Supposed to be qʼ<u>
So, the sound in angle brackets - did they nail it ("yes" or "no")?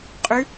no